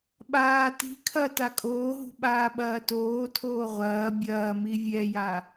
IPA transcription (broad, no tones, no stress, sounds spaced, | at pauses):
ɓ aː t i̤ kʰ ɐ t a kʼ oː ɦ ṳ ɓ aː ɓ ɐː t oː tʰ oː ʁʷ ɐː bʲ ɐː m i vʲ ɛ j a